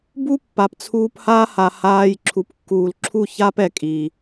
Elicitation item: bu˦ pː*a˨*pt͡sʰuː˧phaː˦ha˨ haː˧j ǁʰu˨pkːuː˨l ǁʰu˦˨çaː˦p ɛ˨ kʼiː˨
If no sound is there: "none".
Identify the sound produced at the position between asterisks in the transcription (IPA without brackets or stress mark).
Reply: a˨